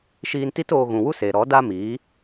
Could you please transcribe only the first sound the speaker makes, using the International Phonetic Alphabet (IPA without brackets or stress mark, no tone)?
ʃ